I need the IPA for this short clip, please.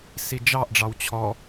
sid͡ʒɑʔɖ͡ʐɑw t͡ɕʰɔ

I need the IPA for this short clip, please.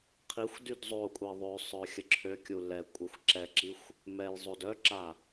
qʰixʷdyd zˤokʷʼɛ ðˤøsˤœ xʲəǁʰøkʲu lɛ kʷʼɛxʷǁɛǁixʷ | mɛjzˤod œǁa

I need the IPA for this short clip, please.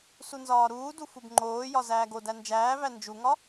sunzɒːɾuːdu fubŋ͡ǃoːjɒ zæːɡodæ nd͡ʒæːvæ nd͡ʒuŋɒ

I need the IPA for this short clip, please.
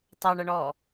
tˤɑɳʌɳɔː

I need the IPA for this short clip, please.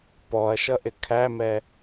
pɔɐ̯ʃʌʔɪ kʰæmɛ

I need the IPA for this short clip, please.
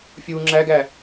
fʲu ŋ͡ǁæɡæ

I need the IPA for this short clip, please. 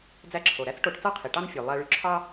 d͡zæ˧ǁʰo˩ɾæ˥t͡s ʈo˧ʈ t͡sɑ˥qʰi˩ʈɑ˥n fʲø˩ lˠæ˧ɭy˧ǁʰɑ˥

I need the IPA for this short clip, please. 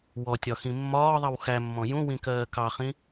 wɔtʲɒxĩ mːɒːðˤʌw xæmːɔ̃ jũwĩkɜː kɑχĩ

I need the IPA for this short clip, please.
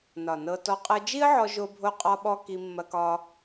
nɒ˨ nɤ˧ tɔ˦ qʼɤ˧ d͡ʒi˦ə̯ʕɔ˧ʒo˧bʱo˧ qʼɒ˦ɓɔ˦ ki˧mːɐ˧kɒ˧

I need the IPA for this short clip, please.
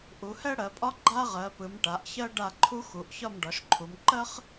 ʔu˨˦hɛ˥ ɽɜ˨˦pʼɒ˥ ɡ͡ǃa˥ʁɜ˨˦pɯ˨˦m ʈa˨˦ʔçɜ˥ ɖa˥˧ǃʰu˥xu˨˦ʔ çɒ˥˧mɖɒ˨˦ʃǃʰu˨˦m ǃɜ˥χ

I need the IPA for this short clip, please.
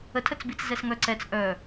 ətʰət͡sbit͡s zɛsŋœǀɛt͡s ʔœ

